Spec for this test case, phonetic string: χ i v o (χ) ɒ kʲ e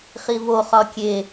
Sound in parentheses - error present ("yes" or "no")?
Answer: no